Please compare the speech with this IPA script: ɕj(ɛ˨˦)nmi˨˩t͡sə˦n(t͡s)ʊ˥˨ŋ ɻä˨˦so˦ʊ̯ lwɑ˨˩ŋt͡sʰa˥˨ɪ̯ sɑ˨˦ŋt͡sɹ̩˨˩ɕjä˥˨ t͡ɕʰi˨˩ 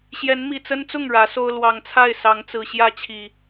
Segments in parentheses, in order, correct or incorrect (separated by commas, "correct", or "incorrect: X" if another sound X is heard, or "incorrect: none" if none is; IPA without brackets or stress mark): correct, correct